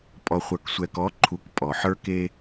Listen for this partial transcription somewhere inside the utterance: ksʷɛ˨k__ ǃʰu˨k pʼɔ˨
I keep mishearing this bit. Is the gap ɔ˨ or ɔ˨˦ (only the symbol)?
ɔ˨˦